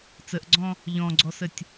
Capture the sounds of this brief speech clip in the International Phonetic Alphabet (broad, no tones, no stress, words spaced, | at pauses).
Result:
t͡səʔɡ͡ǀɔ̃ | ʎɔ̃ɡ͡ǀɔsətʲ